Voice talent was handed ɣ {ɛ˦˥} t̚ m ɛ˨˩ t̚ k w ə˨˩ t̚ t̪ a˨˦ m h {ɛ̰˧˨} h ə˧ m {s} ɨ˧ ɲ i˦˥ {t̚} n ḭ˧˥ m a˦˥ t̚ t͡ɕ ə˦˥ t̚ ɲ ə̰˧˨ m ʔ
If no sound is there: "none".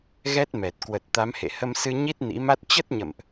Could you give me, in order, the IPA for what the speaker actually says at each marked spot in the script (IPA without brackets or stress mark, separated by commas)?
ɛ˦˥, ḛ˧˨, s, t̚